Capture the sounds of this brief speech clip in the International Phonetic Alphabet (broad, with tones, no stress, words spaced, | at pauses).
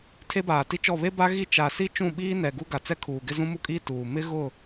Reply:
tʰe˦baː˨ti˦t͡ʃɔ˦˨ βe˦ba˦ ɣi˦˨ t͡ʃa˨si˦ t͡ʃũ˦˨ɓiː˦nɛ˨ ɡu˦ɡa˨t͡sɛ˦kʰuː˨ ɡɪ˦zũ˦mu˦kʼiː˦ tuː˨ mɪ˦ɣʊ˦˨